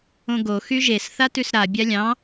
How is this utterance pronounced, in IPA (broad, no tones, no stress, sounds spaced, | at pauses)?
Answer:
õ ɡ o x y ʒ e s θ a t ʉ s ɾ a bʲ a lʲ ɑ̃